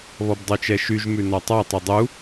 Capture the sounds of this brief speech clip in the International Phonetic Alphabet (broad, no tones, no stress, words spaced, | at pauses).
βɔbdˤʉt͡ʃɛʃyʒ mʉnɔtˤɑ tˤidˤu